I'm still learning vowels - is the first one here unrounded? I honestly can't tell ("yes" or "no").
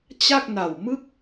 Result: yes